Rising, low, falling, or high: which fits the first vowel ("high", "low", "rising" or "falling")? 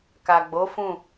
low